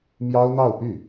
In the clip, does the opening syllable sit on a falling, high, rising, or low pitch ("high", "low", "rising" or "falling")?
high